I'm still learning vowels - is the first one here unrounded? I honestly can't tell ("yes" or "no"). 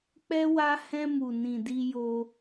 yes